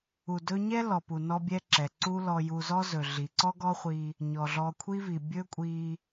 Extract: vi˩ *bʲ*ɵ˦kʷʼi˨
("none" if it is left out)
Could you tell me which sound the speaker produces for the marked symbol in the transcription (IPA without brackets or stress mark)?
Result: bʲ